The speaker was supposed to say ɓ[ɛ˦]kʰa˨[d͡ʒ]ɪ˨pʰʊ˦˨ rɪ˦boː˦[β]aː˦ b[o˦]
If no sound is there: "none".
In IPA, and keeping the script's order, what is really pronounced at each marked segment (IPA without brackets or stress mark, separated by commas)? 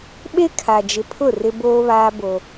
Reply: e˦, d͡ʒ, β, o˦